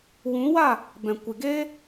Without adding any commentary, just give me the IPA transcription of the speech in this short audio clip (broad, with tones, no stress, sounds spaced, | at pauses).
w ũ˨˦ w a˦˨ | b ɛ̃˨ kʷ ɨ˨ ɡ eː˦